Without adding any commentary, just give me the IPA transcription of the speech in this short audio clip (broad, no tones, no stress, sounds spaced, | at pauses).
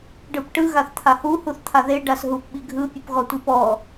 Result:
ɖ ɯ p ʈ ɯ ɣ a θ t̪ʰ a h u h u θ t̪ʰ a ð e ɖ a s ɦ u p ɓ i ɡʱ ɯ pʲ u p ɣ ɔ tʷ i p ɔ